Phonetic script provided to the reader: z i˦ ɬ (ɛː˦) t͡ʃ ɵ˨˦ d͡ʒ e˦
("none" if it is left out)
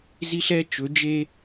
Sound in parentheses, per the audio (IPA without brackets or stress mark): ɛ˦